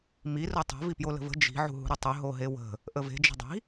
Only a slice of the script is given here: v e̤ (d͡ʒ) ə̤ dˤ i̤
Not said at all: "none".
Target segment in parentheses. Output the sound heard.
d͡ʒ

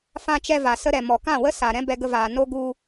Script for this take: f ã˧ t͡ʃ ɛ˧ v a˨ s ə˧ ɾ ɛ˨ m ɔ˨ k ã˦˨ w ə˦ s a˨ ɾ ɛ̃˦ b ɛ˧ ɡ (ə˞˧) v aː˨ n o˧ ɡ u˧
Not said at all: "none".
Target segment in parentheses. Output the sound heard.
ə˧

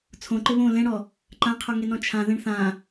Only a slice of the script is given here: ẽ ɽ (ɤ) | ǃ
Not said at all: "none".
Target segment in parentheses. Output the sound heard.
ɔ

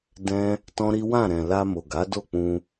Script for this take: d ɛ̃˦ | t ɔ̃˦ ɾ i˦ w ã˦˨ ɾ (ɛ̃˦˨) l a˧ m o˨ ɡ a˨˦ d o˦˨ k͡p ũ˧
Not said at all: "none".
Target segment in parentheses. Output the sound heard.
ɛ̃˨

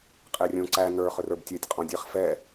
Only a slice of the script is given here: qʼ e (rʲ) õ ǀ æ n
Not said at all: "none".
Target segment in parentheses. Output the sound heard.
rʲ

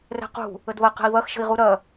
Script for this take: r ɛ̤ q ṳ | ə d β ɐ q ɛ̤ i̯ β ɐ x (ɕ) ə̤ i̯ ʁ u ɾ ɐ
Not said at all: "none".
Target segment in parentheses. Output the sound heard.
ʃ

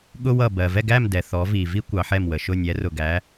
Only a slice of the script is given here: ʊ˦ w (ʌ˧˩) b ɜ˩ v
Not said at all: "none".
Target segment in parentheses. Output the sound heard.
ʌ˧˩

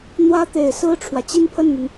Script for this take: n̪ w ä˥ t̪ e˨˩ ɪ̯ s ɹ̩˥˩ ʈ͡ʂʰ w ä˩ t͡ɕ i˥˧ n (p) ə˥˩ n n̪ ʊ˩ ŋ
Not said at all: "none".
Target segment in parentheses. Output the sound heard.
pʰ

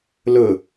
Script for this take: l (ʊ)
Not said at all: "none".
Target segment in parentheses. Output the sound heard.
ʊ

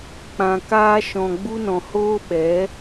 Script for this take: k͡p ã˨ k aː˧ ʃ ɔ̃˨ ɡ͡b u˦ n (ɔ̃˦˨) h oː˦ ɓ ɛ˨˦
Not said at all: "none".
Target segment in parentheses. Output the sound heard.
ɔ̃˨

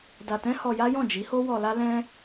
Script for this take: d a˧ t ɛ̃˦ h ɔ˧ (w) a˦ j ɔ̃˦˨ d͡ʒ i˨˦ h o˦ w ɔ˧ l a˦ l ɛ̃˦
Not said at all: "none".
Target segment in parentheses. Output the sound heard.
j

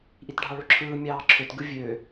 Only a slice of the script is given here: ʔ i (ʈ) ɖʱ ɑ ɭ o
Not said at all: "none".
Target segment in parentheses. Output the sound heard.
t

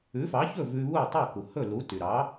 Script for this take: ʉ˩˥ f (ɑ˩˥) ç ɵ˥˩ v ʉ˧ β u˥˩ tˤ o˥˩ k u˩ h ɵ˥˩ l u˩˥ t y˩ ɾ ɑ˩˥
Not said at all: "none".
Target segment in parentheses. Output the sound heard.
ɑ˩˥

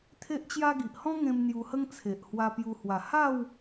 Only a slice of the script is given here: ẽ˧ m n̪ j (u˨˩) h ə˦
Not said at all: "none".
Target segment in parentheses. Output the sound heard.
u˧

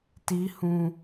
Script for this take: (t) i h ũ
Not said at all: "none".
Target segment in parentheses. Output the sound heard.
t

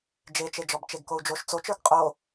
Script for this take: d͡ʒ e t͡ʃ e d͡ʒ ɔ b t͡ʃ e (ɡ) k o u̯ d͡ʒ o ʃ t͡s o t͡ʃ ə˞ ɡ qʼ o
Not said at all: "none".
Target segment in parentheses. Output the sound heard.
ɡ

